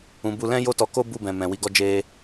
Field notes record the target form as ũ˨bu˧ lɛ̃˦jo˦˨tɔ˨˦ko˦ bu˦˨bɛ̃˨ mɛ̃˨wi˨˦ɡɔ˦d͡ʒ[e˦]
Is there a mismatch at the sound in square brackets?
no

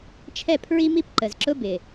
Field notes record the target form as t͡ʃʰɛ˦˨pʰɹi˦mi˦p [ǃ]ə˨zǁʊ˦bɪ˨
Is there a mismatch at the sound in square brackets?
no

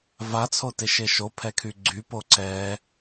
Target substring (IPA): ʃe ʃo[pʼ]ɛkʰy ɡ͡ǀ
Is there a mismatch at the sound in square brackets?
yes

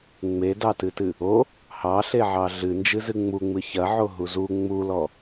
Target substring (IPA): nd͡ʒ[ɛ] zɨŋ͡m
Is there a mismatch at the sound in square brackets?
yes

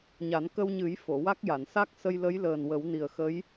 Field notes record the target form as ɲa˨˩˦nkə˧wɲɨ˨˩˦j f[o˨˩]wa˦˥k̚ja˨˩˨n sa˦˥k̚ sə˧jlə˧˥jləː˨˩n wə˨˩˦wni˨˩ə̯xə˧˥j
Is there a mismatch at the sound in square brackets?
yes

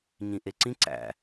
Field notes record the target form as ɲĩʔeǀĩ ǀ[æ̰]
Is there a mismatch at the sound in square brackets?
no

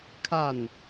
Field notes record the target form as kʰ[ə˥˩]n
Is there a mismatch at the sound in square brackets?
yes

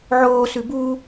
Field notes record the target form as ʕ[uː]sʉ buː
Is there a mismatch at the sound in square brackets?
yes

